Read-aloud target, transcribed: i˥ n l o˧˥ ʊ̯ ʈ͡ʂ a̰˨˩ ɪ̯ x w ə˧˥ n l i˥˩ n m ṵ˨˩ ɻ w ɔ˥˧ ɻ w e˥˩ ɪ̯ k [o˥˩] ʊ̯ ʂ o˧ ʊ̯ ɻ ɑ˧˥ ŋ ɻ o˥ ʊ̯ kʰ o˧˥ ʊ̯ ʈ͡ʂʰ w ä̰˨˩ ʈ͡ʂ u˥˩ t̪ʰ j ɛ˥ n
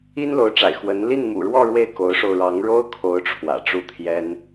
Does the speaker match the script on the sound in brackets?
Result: no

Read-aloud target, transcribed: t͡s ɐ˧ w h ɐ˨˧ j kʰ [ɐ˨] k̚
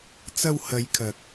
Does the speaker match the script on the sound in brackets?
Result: yes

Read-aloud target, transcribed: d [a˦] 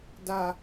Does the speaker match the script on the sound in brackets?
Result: yes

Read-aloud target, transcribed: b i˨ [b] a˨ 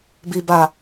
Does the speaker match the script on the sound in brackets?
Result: yes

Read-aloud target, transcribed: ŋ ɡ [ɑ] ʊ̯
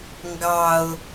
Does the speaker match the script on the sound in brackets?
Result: yes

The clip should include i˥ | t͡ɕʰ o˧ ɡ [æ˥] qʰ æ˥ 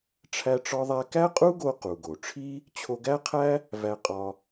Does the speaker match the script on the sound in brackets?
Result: yes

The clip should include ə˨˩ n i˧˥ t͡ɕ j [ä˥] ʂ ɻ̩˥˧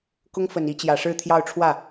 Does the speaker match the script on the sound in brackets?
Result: no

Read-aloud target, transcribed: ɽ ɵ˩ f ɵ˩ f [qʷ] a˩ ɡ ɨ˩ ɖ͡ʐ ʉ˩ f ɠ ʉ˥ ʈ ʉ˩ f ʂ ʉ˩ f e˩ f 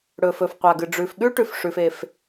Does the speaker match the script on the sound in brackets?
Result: yes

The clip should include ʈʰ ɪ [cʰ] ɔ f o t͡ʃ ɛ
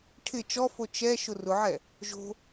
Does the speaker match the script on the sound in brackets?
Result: no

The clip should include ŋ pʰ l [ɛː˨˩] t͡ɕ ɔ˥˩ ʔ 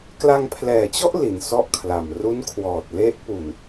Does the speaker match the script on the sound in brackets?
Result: yes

